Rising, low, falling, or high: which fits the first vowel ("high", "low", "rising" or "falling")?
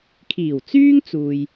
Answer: low